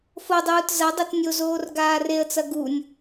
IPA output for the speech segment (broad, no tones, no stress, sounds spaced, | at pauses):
f o dˤ uː t z ɐ dˤ e t nʲ o z oː r ɡ aː r e ə̯ t͡s ɐ ɡ u nʲ